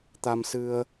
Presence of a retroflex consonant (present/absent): absent